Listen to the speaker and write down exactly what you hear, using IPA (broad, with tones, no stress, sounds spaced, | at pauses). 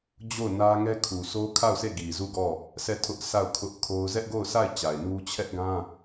d͡ʑ o˦˨ ʊ̯ n ä˦ ŋ ɛ˦ kʰ u˨ sʰ o˦ kʰ a˦˨ ʊ̯ sʰ e˦˨ ɡ i˨ z u˦˨ ɡ ɔ˦˨ | s ɛ˦˨ tʰ ʊ˦ ʔ sʰ a˦˨ ʊ̯ kʰ ʊ˦ ʔ kʰ o˦ ʊ̯ z ɛ˦ ʔ ɡ o˦˨ ʊ̯ sʰ a˦˨ ɪ̯ t͡ɕ a˨ ɪ̯ n u˦ t͡ɕʰ ɛ˦ ʔ ɡ ã˦